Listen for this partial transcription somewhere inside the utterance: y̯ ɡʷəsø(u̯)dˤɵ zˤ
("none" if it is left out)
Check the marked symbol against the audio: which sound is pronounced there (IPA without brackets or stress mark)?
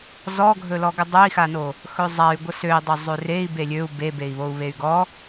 i̯